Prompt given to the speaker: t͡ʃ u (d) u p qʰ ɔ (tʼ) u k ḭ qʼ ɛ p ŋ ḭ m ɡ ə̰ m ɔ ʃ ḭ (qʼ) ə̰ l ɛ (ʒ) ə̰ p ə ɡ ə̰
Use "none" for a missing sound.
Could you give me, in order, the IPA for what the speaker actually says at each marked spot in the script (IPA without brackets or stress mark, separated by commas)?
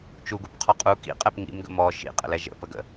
ɡ, qʼ, qʼ, ʒ